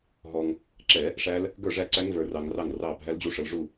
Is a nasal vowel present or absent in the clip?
absent